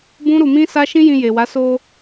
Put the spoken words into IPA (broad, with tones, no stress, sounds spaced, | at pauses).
b ũ˦ ɾ u˧ m ĩ˦ s a˦ ʃ ĩ˦ j ĩ˧ j e˨ w a˨˦ s o˧